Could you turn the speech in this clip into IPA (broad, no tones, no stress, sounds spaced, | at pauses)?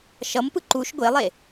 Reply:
ʃ ʌ m p ɯ ǃ u ʃ ɡʷ e lˠ e